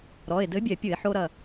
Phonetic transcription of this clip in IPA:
ɾ ɔ˩˧˩ e̯ d ɘ˨˥ bʲ ɛ˧˩˧ pʲ ɨ˧˩˧ e̯ ħ o˧ ɾ ɐ˧˩

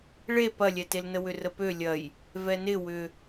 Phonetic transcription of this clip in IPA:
ɭ e p ɐ lʲ ɛ t e l n ə w ʏ r ə p ø lʲ ɐ j | v ɛ n ɪ w ʏ

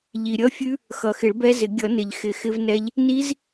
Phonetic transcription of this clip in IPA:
ʎ i˩ ɾʲ ʌ˦˥ fʲ ʉ˦˥ | x ʌ˩ x ɪ˨˩˦ ɭ b ɛ˦˥ z ɪ˨˩˦ ɡʲ ʌ˨˩˦ n ɪ˩ ʎ x ɪ˨˩˦ x ɪ˦˥ v n ɛ˦˥ ʎ | n i˦˥ z

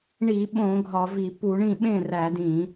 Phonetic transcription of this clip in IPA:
ɳ i˧˩˧ ɓ õ˧˩˧ ɡʱ ɒ˧˩˧ v i˧˩˧ p u˧˩˧ ɳ ĩ˥˩ ɓ ẽ˥˩ r æ˧˩˧ d ĩ˧˩˧

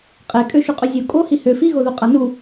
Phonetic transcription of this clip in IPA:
qʼ e kʼ ø ʃ u qʼ y zʲ o kʼ o h i h ø f i ɣ o ð u qʼ a n u

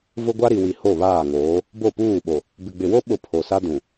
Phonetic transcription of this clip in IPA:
v ʊ˦ ɡʷ a˦ ɾ i˨ w i˨ h o˦˨ β aː˦˨ ŋ oː˨˦ | b o˦˨ p uː˦˨ ɓ o˨ | b ɪ˨ ɡ͡b ɪ˨ w o˦ ɓ ʊ˦˨ pʰ o˨ s a˦ d ũ˨

